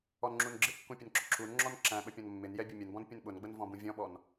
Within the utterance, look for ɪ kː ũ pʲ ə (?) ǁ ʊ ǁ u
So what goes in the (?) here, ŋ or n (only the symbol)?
n